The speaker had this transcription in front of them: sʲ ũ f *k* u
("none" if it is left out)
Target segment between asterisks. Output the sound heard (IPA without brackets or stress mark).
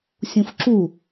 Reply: ǁ